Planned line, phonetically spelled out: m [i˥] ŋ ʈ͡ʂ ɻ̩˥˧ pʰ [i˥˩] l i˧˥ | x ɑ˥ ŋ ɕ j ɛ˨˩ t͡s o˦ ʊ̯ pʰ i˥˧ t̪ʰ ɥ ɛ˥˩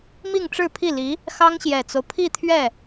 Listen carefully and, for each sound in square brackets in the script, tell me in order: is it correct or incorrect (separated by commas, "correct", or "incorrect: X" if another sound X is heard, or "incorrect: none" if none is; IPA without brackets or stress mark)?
incorrect: i˥˧, correct